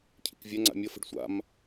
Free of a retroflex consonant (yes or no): no